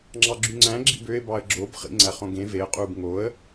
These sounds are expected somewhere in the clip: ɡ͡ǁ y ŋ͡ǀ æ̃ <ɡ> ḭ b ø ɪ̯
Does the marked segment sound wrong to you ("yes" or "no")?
yes